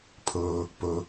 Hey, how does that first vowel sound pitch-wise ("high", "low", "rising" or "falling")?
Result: low